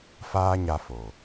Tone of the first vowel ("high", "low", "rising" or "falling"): high